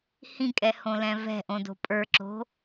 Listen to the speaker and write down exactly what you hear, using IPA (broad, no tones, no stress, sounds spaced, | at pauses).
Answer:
h ĩ kʼ ɛ h õ l ɛ̃ v ɛ̤ ʔ õ d o̤ pʼ ə˞ ǁ o̤